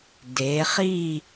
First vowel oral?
yes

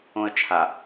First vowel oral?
no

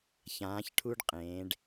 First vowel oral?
no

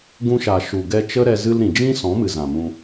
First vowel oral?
no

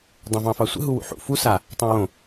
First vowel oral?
no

